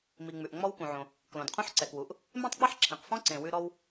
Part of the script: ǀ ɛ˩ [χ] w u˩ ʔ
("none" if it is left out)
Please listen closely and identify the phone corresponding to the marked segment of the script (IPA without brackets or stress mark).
k